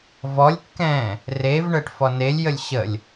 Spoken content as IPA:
v ɔ lʲ kː ɛ̃ː | r e v ɳ əː ʈ f ɔ n e lʲ j ə lʲ ɕ ə lʲ

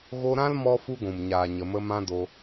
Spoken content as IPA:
ɣ o˧ ɾ ã˦ l m ɔ˦ f u˦ ɡʷ ũ˨ m ɲ aː˨ ɲ ə˨ m ə˧ m ã˦ d o˧

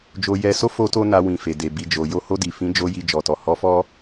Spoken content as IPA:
d͡ʒ o˧ j ɛ˧ s o˦ f o˦ t o˦ n a˧ w ĩ˨ f e˨ d e˨ b i˨ d͡ʒ o˨ j o˧ h o˧ d i˨ f ĩ˨˦ d͡ʒ o˧ j i˧ d͡ʒ ɔ˨ t ɔ˨ h ɔ˧ f ɔ˦

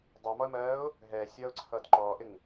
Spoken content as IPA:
dˤ ʌː m ɔ ə̯ m ɜː ʊ̯ | ɦ ɛː sʲ ʌː ʊ̯ ǀʰ ʌː d ǃ ɔː ʔ ɪ ŋ

